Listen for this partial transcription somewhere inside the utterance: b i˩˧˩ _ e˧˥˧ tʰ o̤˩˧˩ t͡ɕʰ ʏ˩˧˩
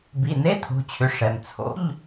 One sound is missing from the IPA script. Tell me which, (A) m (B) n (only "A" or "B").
B